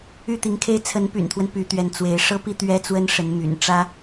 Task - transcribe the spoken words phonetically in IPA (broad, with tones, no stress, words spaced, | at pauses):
y˥˩t̪i˧˥ŋkʰe˥ɪ̯ t͡sʰə˧˥npy̰˨˩nt̪ʰwə˦n py˧˥t̪ɥɛ˧˥n t͡swe˧˥ɪ̯ ʂɤ˥pi˥ t̪ɥɛ˥t͡swə˥nʂə˧˥nmy̰˨˩n ʈ͡ʂä˥